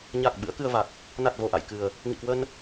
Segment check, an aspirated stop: absent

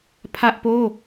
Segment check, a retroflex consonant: absent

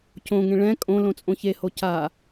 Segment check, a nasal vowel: present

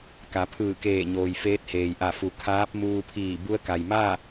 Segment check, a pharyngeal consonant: absent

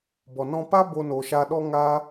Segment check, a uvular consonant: absent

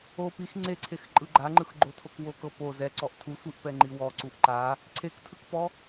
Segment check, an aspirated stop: present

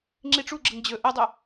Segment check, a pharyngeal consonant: absent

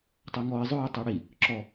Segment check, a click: present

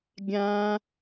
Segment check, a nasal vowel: present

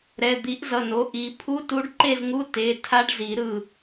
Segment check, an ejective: absent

